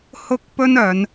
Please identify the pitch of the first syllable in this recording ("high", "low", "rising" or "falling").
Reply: high